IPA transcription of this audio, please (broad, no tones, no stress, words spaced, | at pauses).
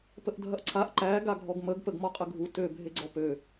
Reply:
pəʔdʱɐʔǀʰaʔ ǃæ ɡaɡʱɔɡməɡ pəɡmɔqʼəɡʱu tø bʱeɡ͡ǀɔpø